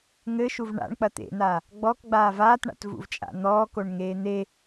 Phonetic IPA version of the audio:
ŋ ɘ ʃ u v ɳ a̰ ɳ k͡p ɐ t̪ ḛ n̪ aː | ɡ͡b ɔ k ɡ͡b aː v aː t ɳ a̰ t v ṵ v t͡ʃʼ a̰ n̪ ɔː k o ɳ ŋ eː n̪ e

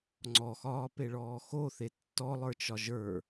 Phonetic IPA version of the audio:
ŋ͡ǀ ɔ x ɒː p e ɭ ɔː x o θ e tː ɔ lˠ ə˞ t͡ʃ ɒ ʒ ə˞

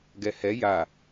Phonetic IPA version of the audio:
ɡ ɛ h ɛ j a

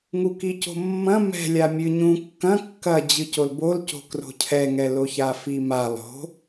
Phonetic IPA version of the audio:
ŋ u k i c o̤ mː ɐ̃ m ɛ̤ lʲ a mʲ ɨ ɲ ũ kː ɐ̃ kː ɐ d͡ʑ ɨ c o l b o l c o̤ k r o̤ cʰ ɛ ŋ ɛ l o ç a f i m a lˠ o̤

